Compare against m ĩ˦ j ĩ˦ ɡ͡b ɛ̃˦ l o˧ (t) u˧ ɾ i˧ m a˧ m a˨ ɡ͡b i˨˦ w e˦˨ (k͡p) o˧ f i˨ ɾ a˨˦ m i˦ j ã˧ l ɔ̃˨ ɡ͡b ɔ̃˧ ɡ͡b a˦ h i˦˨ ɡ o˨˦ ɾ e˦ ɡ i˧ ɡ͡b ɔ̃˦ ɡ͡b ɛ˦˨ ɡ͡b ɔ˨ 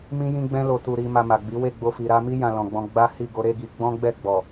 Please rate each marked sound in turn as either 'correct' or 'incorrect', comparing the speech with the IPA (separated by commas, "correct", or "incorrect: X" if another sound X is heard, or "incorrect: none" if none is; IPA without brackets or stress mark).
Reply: correct, incorrect: ɡ͡b